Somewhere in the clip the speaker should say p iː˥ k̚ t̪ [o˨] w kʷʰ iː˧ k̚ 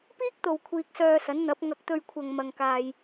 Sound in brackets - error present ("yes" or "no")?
no